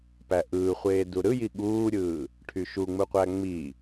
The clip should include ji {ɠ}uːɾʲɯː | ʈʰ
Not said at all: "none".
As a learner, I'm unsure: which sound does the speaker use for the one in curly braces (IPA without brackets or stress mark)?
ɠ